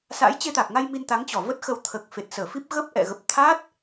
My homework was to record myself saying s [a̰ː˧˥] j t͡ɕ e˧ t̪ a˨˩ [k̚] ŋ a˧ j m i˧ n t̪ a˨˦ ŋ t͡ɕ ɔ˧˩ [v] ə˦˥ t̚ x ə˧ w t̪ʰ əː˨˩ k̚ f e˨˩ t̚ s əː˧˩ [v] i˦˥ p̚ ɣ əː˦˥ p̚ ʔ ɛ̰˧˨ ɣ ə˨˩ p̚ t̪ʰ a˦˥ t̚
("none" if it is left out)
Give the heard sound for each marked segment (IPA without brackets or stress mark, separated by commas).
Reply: a̰ː˧˥, k̚, v, f